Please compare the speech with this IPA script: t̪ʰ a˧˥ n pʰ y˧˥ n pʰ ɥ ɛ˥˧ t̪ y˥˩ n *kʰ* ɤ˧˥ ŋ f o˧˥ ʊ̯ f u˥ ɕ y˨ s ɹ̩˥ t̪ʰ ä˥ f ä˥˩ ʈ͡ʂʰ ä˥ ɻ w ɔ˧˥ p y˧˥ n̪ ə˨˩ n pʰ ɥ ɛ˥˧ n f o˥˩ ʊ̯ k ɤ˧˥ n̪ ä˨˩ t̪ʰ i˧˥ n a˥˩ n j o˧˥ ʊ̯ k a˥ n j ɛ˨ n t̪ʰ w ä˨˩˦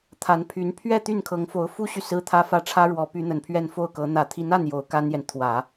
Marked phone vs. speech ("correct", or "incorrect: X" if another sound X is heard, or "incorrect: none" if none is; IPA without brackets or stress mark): correct